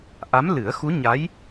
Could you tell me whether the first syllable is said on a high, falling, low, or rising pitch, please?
rising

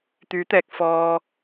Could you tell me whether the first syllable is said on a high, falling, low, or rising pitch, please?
rising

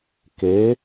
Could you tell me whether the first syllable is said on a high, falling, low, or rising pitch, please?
rising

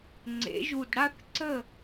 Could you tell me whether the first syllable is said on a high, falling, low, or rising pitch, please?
rising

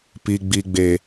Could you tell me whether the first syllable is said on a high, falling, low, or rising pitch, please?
high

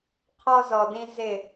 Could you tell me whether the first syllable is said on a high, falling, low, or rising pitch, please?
high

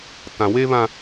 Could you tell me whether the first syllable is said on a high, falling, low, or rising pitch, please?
low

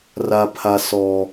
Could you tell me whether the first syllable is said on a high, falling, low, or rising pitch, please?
high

